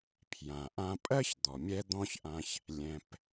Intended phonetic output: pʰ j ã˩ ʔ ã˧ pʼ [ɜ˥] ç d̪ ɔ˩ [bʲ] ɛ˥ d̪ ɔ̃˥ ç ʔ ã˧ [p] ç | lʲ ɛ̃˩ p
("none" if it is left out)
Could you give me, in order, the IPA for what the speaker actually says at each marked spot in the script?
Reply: ɜ˥, mʲ, none

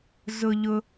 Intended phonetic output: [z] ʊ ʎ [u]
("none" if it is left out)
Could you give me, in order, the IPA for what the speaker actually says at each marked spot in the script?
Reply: z, ʊ

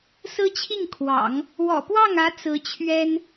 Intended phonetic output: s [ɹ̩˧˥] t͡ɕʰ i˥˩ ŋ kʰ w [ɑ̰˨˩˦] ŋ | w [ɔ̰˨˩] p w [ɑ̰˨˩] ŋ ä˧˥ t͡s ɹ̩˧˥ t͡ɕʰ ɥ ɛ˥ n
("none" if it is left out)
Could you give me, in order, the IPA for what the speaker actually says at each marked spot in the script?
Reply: ɹ̩˥, ɑ̰˨˩˦, ɔ̰˨˩, ɑ˥˩

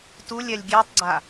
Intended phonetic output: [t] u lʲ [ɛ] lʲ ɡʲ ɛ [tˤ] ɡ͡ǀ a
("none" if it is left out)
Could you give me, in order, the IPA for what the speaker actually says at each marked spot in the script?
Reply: t, ɛ, tˤ

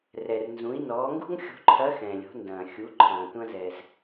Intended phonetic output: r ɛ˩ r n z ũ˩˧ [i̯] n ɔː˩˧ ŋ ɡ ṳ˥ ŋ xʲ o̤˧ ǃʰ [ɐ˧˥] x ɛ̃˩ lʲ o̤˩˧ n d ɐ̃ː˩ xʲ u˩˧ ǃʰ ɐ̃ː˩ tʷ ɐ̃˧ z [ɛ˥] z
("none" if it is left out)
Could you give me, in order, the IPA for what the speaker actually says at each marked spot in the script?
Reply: i̯, ɐ˧˥, ɛ˩

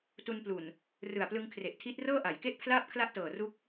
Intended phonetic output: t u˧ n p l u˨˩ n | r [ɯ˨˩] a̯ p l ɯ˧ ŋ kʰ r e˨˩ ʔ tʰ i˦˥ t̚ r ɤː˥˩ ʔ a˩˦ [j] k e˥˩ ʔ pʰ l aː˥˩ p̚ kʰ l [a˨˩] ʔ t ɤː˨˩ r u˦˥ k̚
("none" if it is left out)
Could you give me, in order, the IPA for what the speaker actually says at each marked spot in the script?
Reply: ɯ˨˩, j, a˥˩

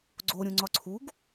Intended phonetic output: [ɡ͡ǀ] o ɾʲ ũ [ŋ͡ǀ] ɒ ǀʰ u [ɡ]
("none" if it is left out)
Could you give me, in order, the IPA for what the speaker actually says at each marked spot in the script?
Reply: ɡ͡ǀ, ŋ͡ǀ, ɡ

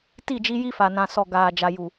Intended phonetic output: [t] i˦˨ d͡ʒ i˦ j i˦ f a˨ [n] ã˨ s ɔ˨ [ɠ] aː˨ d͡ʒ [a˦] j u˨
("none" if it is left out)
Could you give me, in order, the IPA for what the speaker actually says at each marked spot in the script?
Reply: t, n, ɡ, a˨

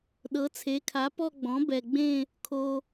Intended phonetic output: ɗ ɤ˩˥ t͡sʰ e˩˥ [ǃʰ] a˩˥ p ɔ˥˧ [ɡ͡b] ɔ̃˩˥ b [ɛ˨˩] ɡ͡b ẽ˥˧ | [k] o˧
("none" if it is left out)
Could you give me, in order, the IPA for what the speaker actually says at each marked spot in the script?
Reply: kʰ, ɡ͡b, ɛ˨˩, kʰ

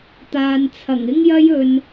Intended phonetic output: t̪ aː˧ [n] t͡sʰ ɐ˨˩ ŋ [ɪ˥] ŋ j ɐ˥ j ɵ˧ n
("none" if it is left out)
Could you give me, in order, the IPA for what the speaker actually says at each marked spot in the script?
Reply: n, ɪ˥

